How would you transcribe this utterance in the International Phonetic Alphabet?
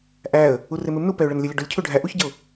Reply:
ʔ æ ə̯ | u r ɪ m ɪ m n u p ɛ ʊ̯ ɭ ə n lʲ ə lʲ ə ɖ u lʲ cʰ u ɖʱ æ ʔ u ç ɟ ə ʊ̯

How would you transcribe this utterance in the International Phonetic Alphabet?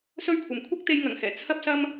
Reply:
s ɵ˥ ɥ kʷʰ ɐ˨ m kʷʰ ɐ˥ k̚ t̪ e˧ j ŋ ɐ˨˩ ŋ h ɛː˨˩ t͡sʰ ɐ˥ p̚ s ɐ˥ m

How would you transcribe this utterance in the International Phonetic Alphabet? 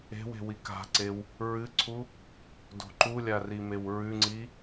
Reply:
e̤ w e̤ w i k a̤ ǀ e w | ɹ ɨ ǀʰ u | d o̤ ǃ u lʲ a r i m e w ɹ ʉ ŋ͡ǀ i

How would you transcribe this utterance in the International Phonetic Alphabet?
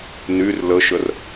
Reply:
n y r l ə ʃ ə r

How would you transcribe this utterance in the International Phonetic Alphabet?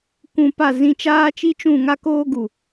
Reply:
kʷ ũ˧ p a˦˨ z ĩ˦˨ t͡ʃ aː˦ t͡ʃ i˦ t͡ʃ ũ˦˨ ŋ a˦ k oː˦ ɡ u˨

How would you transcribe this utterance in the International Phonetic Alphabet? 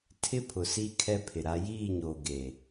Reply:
tʰ ɪ˦ pʰ ʊ˨ s i˦ kʰ ɛ˦ pʰ ɪ˨ ɾ a˦ j iː˦˨ ɲ oː˨ ɡ e˨

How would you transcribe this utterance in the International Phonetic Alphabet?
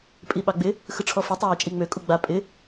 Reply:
pʼ i ɓ ɑ ɡ͡b ɪ | x ɯ ʈ͡ʂʰ ɔ f i tˤ ɪ w ɪ t͡ʃʼ i ŋ͡m ø kʼ u ɡ͡b a pʼ ɪ

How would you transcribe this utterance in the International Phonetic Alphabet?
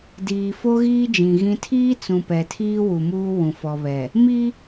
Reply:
d iː˨ f o˦ ɣ iː˦ d͡ʒ ĩ˨ ɣ ĩ˦ tʰ iː˦ t͡s ũ˨ p ɛ˨ tʰ iː˦ w u˨ m uː˦ w ũ˨ f ɔ˨ β ɛ˨ | m i˦

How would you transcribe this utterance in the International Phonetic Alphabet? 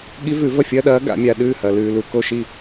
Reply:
ɠ i˧˥ v ʉ˨˩˦ v ɐ˥˩ fʲ ɐ˧˥˧ ɗ ɐː˧˥ ɡ a̰˨˩˦ mʲ a˨ ɗ ʉː˥˩ h ɐ˨ l ʉː˨ l u˨ k o˥˩ ʃ i˥˩

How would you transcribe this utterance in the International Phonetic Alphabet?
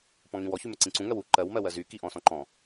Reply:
p ɔ̃ ŋ ĩ w ɔ ç y m ə ǀ ĩ ǀ ũ ŋ ɜ w u ǃ ɜ w m ɜ w ɜ z y k i ʔ ɔ̃ s ɔ̃ ǃ ɔ̃

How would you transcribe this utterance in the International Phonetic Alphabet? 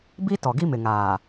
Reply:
b i˦ t ɔ˨ ɡ i˦ m ɪ˨ ŋ aː˨

